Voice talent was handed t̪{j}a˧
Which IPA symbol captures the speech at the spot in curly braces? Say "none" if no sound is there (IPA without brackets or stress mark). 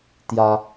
j